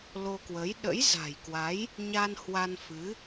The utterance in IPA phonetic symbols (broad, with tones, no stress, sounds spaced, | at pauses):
l o˧ k w ə˨˦ j ɗ ə̰˧˥ j z a̤˨˩ j k w a˨˦ j | ɲ a˧ n h w a˧ n f ɨ˨˦